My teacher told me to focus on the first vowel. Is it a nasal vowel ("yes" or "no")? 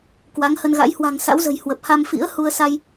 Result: no